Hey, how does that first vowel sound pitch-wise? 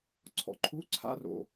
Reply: low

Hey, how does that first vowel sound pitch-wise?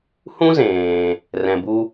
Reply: high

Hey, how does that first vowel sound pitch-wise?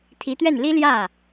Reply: rising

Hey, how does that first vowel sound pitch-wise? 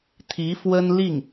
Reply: rising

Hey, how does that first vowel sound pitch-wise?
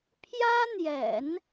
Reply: high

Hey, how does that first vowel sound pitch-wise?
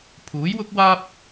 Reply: rising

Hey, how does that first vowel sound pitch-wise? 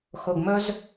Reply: low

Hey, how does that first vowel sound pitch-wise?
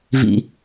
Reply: low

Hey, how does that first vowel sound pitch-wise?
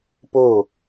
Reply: falling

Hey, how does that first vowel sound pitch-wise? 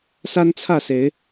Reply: high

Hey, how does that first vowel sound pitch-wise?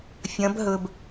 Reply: rising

